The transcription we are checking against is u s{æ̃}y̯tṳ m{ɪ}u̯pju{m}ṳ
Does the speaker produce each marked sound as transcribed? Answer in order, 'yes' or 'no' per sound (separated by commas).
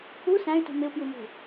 yes, yes, yes